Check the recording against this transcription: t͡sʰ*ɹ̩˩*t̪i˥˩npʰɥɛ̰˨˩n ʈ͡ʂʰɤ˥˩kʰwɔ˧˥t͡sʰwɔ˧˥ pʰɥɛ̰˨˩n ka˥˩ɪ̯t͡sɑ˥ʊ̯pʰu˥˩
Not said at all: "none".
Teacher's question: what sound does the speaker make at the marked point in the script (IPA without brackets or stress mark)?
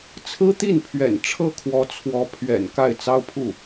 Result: ɹ̩˥